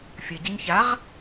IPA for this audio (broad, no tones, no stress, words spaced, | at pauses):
fʲɘɟɘɲ çaʁ